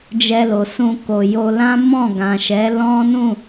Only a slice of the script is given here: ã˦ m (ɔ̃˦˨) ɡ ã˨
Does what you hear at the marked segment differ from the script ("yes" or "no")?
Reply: no